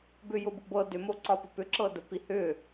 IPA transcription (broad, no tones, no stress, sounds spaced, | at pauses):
b ʏ j ʊ b ʊ b ɤ d ʏ m o ǀ ɒ p ə p ʏ ǁ ɤ d ə p i h ʏ